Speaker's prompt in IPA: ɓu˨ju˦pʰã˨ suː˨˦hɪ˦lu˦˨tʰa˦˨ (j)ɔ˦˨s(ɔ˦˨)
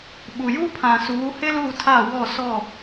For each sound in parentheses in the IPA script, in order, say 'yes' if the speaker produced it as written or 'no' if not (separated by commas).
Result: no, yes